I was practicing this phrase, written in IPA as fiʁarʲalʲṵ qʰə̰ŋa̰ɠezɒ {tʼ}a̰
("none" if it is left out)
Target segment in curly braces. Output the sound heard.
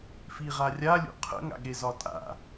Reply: tʼ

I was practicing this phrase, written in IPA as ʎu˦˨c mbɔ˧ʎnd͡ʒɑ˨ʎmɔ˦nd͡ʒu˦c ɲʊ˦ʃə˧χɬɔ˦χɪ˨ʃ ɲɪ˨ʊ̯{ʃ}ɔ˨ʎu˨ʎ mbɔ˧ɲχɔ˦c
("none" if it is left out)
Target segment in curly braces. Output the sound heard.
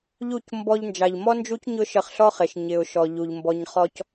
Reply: ʃ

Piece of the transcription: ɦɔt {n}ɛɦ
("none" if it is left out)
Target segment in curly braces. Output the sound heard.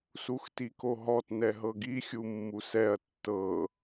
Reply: n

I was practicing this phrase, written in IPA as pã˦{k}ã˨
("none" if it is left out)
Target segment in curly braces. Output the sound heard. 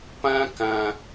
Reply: k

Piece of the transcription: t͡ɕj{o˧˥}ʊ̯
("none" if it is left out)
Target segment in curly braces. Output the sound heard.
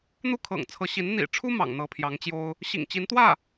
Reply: o˥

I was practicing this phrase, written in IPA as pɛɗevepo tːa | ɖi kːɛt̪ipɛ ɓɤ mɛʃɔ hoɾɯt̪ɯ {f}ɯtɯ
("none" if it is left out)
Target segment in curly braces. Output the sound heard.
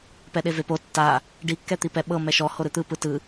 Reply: p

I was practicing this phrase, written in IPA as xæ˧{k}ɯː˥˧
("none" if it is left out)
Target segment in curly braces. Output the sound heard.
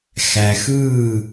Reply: x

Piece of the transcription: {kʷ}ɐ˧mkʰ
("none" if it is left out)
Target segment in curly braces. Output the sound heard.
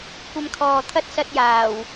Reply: kʷ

